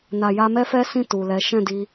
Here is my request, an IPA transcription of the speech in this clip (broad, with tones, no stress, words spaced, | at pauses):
na˨ja˧mɛ˦fɛ˦ sĩ˦˨ tu˨lɛ˨˦ ʃɛ̃˦˨ di˧